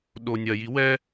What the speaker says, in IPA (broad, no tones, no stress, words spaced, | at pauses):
ɗo nʲɐji wɛ